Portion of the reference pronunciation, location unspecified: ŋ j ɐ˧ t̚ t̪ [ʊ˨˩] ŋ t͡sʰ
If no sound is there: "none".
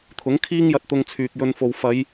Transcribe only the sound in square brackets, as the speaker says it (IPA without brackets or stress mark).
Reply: ʊ˧